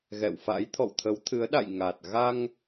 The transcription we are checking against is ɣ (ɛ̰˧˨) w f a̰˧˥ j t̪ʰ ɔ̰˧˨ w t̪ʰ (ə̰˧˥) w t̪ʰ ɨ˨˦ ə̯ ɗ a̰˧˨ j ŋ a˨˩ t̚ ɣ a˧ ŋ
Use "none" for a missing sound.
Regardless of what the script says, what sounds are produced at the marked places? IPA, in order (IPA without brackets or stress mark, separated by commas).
ɛ̰˧˨, ə˨˦